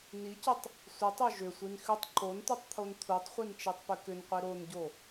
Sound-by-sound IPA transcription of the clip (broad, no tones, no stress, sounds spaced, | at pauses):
n i c ʏ tˤ | sʷ i tˤ o ʒ ʏ sʷ i n x ʏ tˤ ǃ o n tʷ i tˤ t̪ʰ o n t̪ʰ u tˤ χʷ i n t͡ʃ i tˤ p ʏ k ʏ n qʷ i ɾ o n ɟ o